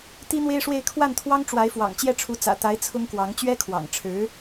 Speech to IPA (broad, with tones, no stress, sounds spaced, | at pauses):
t̪ i˥ n̪ w e˥ ɪ̯ ʂ w e˥˧ ɪ̯ kʰ w a˥˩ n t̪ʰ w ɑ˥ ŋ ʈ͡ʂ w a˧˥ ɪ̯ f w ɑ̰˨˩ ŋ t͡ɕ j ɛ˥˩ ʈ͡ʂʰ u˧˥ t͡s ä̰˨˩ t̪ a˧˥ ɪ̯ t͡sʰ ʊ˥ ŋ k w ɑ˧˥ ŋ t͡ɕ ɥ ɛ˥ kʰ w ɑ̰˨˩ ŋ ʈ͡ʂʰ ɻ̩˧˥